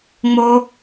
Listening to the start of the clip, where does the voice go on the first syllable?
high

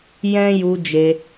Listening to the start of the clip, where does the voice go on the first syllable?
high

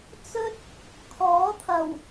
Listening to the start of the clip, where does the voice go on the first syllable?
high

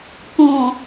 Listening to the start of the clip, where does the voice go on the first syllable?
low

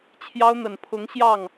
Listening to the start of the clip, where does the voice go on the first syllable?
high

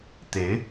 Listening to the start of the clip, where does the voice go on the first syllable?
rising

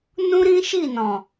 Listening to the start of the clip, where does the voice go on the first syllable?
high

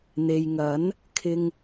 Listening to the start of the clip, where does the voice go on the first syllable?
low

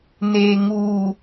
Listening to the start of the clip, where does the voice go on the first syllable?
low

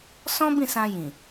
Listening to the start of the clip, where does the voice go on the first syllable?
high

